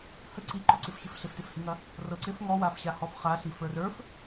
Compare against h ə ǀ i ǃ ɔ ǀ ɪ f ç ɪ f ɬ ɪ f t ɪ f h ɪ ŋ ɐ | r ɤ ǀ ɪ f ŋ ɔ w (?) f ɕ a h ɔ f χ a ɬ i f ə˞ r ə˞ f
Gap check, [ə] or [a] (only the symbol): a